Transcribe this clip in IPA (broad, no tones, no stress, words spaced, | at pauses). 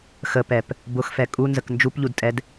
xəpɛp | bʊxfɛ kʼunzək nd͡ʒupʎudtʼɛd